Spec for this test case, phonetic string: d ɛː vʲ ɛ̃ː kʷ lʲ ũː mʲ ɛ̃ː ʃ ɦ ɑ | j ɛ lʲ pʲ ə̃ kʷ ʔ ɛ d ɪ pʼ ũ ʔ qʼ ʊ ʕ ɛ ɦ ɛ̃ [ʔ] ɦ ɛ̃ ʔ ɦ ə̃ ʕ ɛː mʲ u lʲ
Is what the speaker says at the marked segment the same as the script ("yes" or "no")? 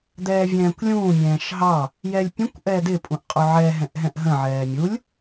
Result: yes